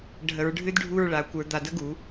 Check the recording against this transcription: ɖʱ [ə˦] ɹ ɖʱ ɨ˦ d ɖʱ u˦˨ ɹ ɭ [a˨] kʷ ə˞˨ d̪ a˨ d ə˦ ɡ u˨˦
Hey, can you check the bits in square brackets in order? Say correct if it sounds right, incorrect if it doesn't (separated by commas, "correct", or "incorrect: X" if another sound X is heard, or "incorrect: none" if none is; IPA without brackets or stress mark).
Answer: incorrect: ə˨, correct